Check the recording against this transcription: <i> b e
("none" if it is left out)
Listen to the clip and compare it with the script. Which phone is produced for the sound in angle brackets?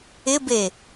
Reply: ɪ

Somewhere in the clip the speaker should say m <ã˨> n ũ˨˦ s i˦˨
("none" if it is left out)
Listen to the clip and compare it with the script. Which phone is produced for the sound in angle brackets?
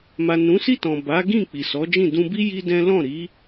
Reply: a˨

